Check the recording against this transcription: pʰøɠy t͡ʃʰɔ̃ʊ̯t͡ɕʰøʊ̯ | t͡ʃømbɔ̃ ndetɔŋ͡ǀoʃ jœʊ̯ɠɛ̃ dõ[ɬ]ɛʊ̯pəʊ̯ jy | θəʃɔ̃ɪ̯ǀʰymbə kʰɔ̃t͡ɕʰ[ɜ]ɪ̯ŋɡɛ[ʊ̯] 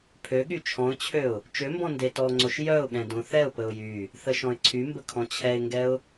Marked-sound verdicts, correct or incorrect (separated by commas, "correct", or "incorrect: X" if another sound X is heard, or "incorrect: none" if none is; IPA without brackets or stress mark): incorrect: θ, incorrect: ɛ, correct